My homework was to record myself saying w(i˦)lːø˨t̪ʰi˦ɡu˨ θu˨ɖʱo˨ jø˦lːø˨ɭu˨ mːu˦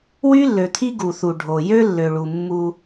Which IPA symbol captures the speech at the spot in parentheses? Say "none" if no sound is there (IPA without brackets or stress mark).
y˦